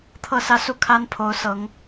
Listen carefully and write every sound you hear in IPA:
t̪ʰ ɤ˥˨ s ä˦ s u˥˨ kʰ a˦ n pʰ o˨˦ ʊ̯ s ɤ˨˦ ŋ

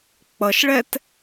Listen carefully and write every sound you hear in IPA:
k͡p ʌ ʃ ɭ ɛ t

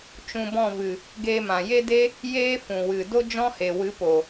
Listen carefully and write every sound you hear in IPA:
t͡ʃ ũ˧ b ɔ̃˦˨ v ɨ˨ | ɡ eː˧ m ã˨ j e˦ d e˦ | j eː˦ f ũ˨ w ɨ˨ d o˦ d͡ʒ ɔ̃˦ h e˨ w ɨ˨˦ p o˨

